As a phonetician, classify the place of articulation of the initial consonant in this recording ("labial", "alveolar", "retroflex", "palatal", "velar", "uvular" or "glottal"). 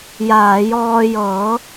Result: palatal